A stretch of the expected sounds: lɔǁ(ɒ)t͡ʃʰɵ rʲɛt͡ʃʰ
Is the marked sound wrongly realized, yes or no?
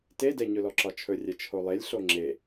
no